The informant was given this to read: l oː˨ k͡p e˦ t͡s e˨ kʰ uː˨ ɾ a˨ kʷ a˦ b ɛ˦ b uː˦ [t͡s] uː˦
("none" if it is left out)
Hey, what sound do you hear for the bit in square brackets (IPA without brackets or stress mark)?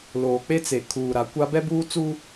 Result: t͡s